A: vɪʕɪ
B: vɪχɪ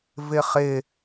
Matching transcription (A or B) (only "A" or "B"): B